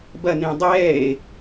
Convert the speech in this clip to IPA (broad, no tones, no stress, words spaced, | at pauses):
bɐnẽ dˤɛːe̯